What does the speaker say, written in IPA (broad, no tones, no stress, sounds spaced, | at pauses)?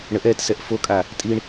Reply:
ɳ ə ʔ ɛː t s ɛ ʔ f o kʼ a | tʼ i ɳ